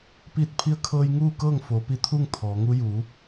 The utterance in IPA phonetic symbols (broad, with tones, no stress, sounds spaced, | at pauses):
p iː˧˩ t̚ pʰ i˧ ə̯ kʰ ɤː˧ j ŋ uː˥˨ k ɤː˥˨ ŋ f oː˩˧ p i˧ t̪ʰ u˥˨ ŋ t̪ʰ ɔː˩˧ ŋ u˧˥ j uː˩˧